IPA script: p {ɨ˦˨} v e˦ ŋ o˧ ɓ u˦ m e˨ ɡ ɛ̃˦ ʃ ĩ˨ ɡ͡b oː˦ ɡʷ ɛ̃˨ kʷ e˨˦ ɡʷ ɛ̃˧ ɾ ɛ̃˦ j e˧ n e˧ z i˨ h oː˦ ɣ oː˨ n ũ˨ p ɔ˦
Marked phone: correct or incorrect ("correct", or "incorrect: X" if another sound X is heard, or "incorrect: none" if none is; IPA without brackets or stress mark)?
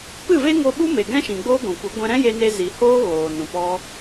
correct